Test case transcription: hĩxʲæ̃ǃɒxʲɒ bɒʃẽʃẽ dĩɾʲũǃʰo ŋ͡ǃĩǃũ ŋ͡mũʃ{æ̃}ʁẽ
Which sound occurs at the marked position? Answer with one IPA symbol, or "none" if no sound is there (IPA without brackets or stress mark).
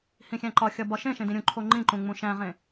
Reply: æ̃